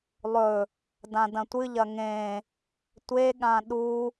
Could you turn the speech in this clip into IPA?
lˠ ɵ | d ã d ɐ̃ tʷ ɨ ʎ ɐ ŋ ẽ | tʷ e ɠ ã ɗ u

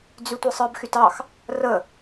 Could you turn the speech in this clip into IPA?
d͡z y tʷ ɯ sˤ ɯ b x y t ɑ x | r ə

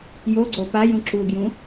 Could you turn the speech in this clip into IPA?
j o ɡ͡ǀ o p a j ũ ǁ u ɡ j ũ

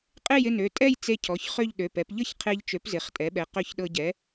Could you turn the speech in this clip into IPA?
qʼ e˥˧ j ɪ˥˧ n ø˩˧˩ tʼ ɛ˥˧ j t͡s e˧ cʰ ɔ˩˧˩ ç χ ø˥˧ ʎ ɗ ø˩˧˩ p ɛ˩˥ p ʎ ɤ˥˧ ç qʰ e˧ ʎ t͡ʃ ø˩˥ p z ɪ˩˧˩ χ tʼ ɛ˩˥ ɓ ɛ˩˥ q ø˧ ç ɗ ɤ˧ ɟ ɛ˩˥

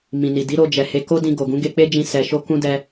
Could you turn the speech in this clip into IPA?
m ĩ˨ n i˨ d i˨˦ ɾ o˧ d͡ʒ ɛ˨ h e˧ k o˦ d ĩ˧ ɡ o˨ ɡ ũ˨˦ ɡ e˧ k͡p e˦ d͡ʒ ĩ˧ s ɛ˧ ʃ o˦ k ũ˦ d ɛ˧

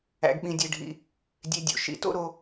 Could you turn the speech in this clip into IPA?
æ̰˩ ɡ ɓ ĩ˩ dʲ e˩ ɖʱ ḭ˩ | dʲ e˨ dʲ o̰˩ ʃ ḭ˩ t o̰˦ ɾ o˨

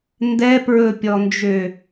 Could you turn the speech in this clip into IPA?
n d ɛ p ɹ ɵ pʲ ɔ n d͡ʒ ø

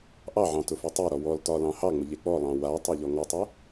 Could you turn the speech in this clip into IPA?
ʔ ɑ ʕ ɑ̃ t ʊ f ʊ tˤ e ɾ ɔ w ɔ l t ɒ l ɑ̃ h ɑ ŋ͡m ʊ ʎ e k͡p ɔ lˠ ɑ̃ w a tˤ ɑ ʎ ɔ ŋ ɒ tˤ ʊ

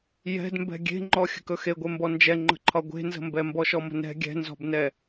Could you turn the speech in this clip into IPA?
j ɛ̤ d m b ɛ̤ ɡʲ e̤ ŋ͡ǃ ɔ xʲ ə̤ k ɵ x e ɡʷ e m b ɔ n d͡ʒ ɛ ŋ͡ǃ ə̤ ǃʰ ɒ ɡʷ e̤ n z ə̤ m b ɛ m b ɔ ʃ ɔ m ə̤ n ɛ̤ ɡʲ ɛ̤ n z ɔ̤ b n ɛ

